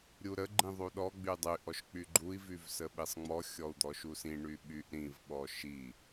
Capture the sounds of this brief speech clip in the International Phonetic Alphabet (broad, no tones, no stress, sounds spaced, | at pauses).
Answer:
ɾʲ u ɾ ə ɡ͡ǃ ĩ ðˤ u ɗ ɔ ɡ͡b y dˤ y ʔ ɔ ʃ k͡p y ɡ͡ǃ u i̯ v y v s ə ɓ i sˤ ŋ͡m ɔ xʲ ɔ u̯ d̪ ɔ ʃ u s ĩ ɳ y ɓ y ʔ ɾ ĩ v ɓ ɔ ʃ i